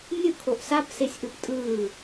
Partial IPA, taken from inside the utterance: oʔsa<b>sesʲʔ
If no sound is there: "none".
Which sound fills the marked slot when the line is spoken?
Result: p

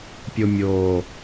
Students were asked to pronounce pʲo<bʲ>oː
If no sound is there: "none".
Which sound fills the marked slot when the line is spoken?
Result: mʲ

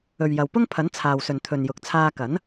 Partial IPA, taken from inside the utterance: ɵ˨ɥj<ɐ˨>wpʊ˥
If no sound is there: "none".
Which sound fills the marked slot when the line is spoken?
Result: ɐ˨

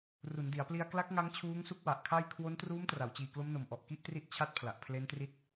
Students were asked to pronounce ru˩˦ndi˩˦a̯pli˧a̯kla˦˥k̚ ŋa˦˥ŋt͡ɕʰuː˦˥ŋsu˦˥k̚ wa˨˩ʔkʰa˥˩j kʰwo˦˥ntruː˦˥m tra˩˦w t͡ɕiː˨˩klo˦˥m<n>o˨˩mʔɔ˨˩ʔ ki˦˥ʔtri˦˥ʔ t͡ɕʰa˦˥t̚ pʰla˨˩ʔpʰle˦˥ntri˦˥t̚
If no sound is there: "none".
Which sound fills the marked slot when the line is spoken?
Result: n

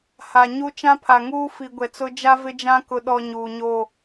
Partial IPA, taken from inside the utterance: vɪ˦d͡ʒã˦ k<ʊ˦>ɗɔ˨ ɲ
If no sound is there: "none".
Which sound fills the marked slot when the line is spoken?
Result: ʊ˨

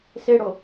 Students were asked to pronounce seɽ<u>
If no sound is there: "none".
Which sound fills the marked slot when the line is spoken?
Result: o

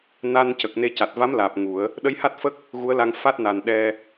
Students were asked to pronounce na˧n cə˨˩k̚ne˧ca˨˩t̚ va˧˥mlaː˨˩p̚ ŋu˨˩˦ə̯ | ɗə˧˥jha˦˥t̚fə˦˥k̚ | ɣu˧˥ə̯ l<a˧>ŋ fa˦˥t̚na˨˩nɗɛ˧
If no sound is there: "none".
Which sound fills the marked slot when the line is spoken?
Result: a˧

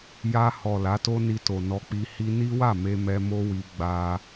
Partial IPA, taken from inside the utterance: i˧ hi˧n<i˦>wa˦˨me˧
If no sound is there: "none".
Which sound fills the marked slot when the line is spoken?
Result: i˦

